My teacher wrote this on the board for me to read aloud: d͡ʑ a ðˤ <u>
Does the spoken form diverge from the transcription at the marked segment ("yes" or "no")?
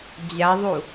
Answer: no